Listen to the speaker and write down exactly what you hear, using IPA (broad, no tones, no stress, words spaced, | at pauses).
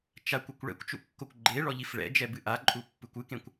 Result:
t͡ʃakʷukʷ ɭɛ̰kʷt͡ʃṵkːokʷ ɡ͡ǃeɭɔʎif ɭɛ̰d͡ʒɛbɨ ʔaǃʼupːɨkʷ ɨkẽkʷ